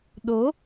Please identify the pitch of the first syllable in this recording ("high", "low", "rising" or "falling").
rising